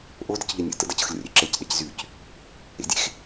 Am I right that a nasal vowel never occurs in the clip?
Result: yes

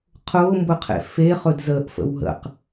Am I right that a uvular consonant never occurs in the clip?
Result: no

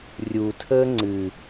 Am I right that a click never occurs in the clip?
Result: no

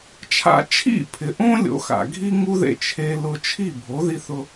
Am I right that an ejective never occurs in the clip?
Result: yes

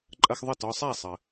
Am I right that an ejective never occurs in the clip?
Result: no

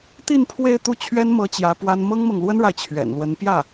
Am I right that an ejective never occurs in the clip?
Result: yes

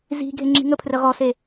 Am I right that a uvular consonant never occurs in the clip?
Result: no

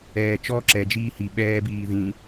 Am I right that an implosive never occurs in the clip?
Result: no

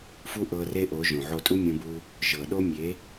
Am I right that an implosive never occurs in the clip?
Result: no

